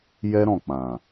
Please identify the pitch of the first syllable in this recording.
high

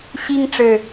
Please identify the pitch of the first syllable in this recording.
high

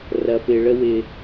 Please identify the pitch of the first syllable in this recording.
low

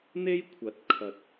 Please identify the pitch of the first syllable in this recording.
high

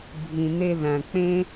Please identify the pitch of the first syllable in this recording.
low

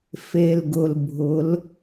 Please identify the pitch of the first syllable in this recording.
low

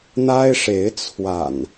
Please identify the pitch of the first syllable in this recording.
high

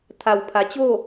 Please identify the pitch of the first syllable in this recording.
low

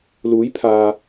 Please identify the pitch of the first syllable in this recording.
rising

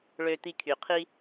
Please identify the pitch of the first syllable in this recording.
low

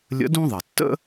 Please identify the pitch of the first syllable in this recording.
rising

